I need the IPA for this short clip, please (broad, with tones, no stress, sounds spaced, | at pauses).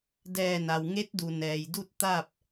d ɛː˧˩ n a˩ w ŋ e˧˥ t̚ d u˩ n ɛː˩ j d u˥˨ t̚ t̪ a˥˨ p̚